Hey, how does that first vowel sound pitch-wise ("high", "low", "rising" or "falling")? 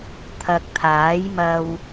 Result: low